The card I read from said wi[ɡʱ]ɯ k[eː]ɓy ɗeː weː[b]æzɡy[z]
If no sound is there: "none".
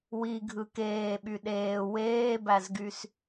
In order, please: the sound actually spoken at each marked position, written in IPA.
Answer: ɡʱ, eː, b, s

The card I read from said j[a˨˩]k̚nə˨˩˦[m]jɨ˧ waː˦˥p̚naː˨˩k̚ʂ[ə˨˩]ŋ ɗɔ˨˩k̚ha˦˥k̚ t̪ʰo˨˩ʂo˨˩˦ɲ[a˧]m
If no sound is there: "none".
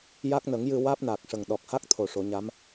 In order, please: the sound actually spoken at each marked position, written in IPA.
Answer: a˦˥, ŋ, ə˨˩, a˧˥

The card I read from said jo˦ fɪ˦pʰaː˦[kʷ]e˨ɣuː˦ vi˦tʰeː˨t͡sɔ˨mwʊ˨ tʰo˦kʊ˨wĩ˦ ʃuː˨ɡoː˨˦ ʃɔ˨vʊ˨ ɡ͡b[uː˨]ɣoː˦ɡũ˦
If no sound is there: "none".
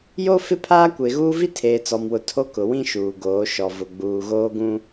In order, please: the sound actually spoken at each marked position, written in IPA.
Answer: kʷ, uː˨

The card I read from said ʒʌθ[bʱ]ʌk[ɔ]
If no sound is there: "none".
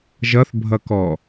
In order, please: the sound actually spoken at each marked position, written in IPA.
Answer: bʱ, ɔ

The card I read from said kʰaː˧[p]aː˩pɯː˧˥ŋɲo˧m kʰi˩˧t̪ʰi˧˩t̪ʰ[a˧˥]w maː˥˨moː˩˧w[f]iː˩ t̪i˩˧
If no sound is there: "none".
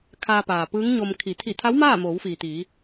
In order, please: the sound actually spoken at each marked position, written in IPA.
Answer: p, a˧˥, f

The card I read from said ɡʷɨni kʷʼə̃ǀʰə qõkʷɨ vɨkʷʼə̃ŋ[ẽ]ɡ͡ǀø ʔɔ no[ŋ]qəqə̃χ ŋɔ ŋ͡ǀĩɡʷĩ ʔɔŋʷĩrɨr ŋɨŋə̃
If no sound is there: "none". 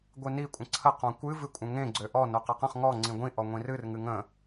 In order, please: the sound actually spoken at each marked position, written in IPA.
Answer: ẽ, none

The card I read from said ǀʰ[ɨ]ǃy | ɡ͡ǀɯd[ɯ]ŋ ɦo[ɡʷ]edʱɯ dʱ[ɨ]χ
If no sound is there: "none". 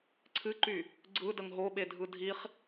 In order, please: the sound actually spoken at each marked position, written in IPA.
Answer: ɨ, ə, ɓ, i

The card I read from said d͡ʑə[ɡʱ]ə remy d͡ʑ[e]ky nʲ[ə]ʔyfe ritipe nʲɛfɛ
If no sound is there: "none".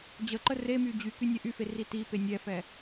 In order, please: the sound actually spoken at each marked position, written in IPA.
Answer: ǃ, y, ɛ

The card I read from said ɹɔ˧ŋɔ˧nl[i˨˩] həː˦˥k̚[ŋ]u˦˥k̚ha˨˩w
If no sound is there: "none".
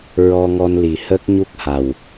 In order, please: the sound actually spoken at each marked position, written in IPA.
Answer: i˨˩, ɲ

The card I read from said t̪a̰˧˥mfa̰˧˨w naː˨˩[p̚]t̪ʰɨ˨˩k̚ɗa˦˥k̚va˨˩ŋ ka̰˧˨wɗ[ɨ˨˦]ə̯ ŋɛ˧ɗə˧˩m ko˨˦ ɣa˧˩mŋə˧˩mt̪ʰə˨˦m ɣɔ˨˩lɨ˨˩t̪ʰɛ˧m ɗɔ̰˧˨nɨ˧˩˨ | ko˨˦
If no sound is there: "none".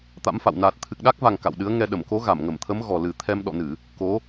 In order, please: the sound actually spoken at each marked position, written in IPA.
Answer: t̚, ɨ˨˦

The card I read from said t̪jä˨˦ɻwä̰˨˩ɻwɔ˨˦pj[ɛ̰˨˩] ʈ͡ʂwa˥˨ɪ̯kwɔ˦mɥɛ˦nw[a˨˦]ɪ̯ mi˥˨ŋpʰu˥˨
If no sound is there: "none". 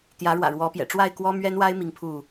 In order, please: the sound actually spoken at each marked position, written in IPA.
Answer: ɛ̰˨˩, a˦

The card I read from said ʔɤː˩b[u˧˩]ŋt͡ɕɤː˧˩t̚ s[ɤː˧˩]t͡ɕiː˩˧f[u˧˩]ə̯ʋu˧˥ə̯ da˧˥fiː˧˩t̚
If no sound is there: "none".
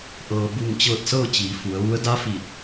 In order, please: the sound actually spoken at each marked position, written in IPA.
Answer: u˧˩, ɤː˥˨, u˩˧

